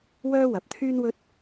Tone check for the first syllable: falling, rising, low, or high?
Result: high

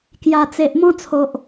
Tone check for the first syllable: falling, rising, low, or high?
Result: low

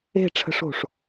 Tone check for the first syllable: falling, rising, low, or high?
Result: falling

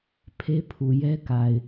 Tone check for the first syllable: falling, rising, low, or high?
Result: high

